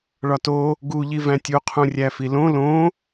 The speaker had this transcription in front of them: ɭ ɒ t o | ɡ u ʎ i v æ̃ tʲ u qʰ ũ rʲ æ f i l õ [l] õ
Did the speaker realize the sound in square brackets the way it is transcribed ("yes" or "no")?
yes